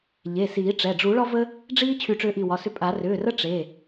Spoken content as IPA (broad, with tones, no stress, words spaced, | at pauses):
ʎe˩˧˩siː˨˩˦ʈ͡ʂɛ˩˧˩ ɖ͡ʐu˨˩˦ɭɒ˦və˦ | ɖ͡ʐiː˦ t͡ɕʰy˧˩ʈ͡ʂʏː˧˩ʔi˧˩ wɒ˩˧˩sʏ˧˩ pʼa˨˩˦ rʏː˩˧˩rə˦ ʈ͡ʂe˩˧˩